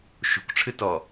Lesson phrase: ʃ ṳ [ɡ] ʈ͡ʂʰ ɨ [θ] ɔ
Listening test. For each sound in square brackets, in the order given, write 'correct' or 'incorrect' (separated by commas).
incorrect, incorrect